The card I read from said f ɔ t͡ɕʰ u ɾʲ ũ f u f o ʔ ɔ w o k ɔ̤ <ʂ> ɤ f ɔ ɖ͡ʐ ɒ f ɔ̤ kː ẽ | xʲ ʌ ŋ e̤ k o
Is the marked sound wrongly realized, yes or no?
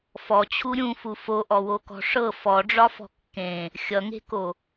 no